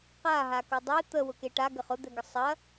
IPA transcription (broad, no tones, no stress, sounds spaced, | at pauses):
q a ɦ a k ʊ dˤ e t̪ ə w ʊ k e ʈ a ɡ ə χ ʊ d̪ ɛ ɡ ə sˤ ɐ